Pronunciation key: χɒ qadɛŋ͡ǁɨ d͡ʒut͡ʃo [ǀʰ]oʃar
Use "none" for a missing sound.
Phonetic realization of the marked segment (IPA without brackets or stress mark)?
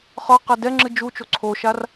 ǀʰ